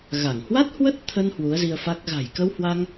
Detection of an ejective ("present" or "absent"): absent